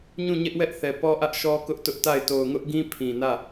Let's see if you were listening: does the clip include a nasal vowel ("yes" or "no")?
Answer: yes